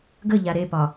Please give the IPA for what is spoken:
ɡ ə ʎ a ɾ e p ɒ

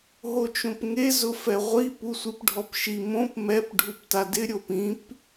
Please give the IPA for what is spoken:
ɦ o t͡ʃ õ p ŋ e z ʊ f ɛ ʁʷ i p u sʷ i p ɖʱ ɔ p ʃ i m õ p m ɛ p ɖʱ u p t a d ɪ ɾʲ o p ĩ p

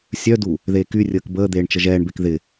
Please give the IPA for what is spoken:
sʲ œ d u | ð eː k y rʲ əː k b əː d̪ eː ɳ t͡ʃ ə ʒ ɛː ɳ b e k ð ɪ

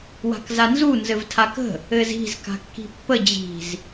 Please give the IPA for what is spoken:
w a̤ k z a n z u n z ɘ v tʰ a k ə̤ | ɘ z i̤ z k a̤ kː i̤ pː ə d͡ʑ i̤ z

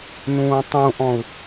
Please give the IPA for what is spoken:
n ũː tˤ ũ ʔ ɔ̃ u̯

